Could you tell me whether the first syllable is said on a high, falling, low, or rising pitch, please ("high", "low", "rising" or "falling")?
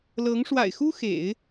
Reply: rising